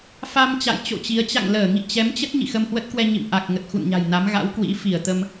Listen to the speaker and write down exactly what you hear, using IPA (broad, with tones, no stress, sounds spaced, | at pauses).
f a˧ m t͡ɕ a̰˧˨ j t͡ɕ o̰˧˨ t͡ɕ i˨˦ ə̯ t͡ɕ a̰˧˨ ŋ l əː˧˩ ŋ ḭ˧˨ t͡ɕ ɛ˨˦ m t͡ɕ ə˦˥ t̚ ɲ ḭ˧˨ x ə˧ m h w ə˦˥ t̚ k w ɛ˧ ɲ ḭ˧˨ m ʔ a˨˩ k̚ ŋ ə˨˩ t̚ x ṵ˧˨ n ɲ a̤˨˩ j n a˨˦ m ɣ a̰˧˥ w k w ḭ˧˥ f i˧˩ ə̯ t̪ ə˧ m